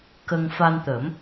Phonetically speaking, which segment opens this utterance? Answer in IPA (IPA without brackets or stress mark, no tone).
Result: k